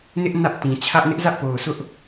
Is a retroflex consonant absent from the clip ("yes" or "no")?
yes